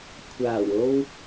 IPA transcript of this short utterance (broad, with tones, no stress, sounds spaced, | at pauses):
kʷʰ aː˨˩ w o˧ w